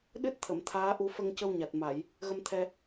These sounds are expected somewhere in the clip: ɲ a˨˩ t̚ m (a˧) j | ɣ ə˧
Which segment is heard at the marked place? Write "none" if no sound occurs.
a˨˩˨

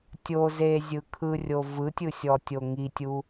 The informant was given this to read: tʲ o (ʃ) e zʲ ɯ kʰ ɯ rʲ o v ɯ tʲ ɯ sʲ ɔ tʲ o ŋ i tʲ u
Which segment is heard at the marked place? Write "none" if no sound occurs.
z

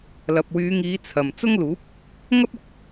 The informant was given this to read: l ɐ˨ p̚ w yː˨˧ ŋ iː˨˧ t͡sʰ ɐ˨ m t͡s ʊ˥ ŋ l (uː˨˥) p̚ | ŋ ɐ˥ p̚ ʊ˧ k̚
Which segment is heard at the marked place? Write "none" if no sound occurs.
uː˨˥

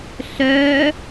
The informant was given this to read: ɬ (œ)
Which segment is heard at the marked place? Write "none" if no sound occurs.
œ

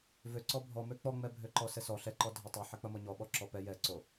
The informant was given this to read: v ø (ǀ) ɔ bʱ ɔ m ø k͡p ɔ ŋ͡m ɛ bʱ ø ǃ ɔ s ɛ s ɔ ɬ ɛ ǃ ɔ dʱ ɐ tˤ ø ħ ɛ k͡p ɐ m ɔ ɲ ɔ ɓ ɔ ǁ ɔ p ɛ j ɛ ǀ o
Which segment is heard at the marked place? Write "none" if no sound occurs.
ǀ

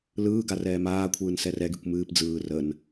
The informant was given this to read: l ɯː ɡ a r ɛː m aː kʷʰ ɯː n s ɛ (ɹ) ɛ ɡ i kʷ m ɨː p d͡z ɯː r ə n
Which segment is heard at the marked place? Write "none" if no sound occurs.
r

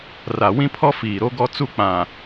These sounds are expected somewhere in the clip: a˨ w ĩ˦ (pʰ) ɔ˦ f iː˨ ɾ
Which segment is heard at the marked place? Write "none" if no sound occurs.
pʰ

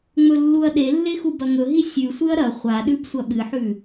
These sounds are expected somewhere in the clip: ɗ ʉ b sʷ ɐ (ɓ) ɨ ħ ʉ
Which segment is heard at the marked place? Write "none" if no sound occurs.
ɓ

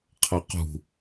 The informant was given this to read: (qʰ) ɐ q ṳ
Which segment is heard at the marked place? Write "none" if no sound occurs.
qʰ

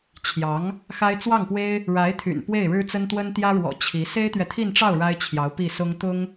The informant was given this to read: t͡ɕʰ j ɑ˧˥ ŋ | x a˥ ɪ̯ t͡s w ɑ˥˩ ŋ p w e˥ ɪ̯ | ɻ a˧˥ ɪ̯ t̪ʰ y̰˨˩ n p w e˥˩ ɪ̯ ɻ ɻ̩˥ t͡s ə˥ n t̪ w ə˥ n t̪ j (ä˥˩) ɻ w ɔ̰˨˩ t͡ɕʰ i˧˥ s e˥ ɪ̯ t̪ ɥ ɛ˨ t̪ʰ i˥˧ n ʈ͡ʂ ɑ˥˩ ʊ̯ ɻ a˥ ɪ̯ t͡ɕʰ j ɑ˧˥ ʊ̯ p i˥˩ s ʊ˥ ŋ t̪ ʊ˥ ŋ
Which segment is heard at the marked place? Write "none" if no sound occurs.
ä˥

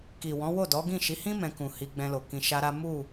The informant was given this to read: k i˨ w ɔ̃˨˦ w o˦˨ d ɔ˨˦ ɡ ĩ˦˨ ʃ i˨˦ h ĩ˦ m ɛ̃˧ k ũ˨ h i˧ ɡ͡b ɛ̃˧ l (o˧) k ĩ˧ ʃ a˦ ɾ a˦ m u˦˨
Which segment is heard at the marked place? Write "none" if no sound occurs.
o˨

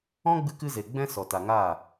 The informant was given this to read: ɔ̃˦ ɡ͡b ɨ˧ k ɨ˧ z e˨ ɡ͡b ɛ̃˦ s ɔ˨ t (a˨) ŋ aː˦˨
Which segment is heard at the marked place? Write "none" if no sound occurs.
a˨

